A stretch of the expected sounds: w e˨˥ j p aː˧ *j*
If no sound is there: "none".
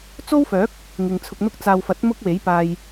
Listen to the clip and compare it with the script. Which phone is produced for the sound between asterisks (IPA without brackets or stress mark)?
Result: j